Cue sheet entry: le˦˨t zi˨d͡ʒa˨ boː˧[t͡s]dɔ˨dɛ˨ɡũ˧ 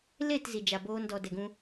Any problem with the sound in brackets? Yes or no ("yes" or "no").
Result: yes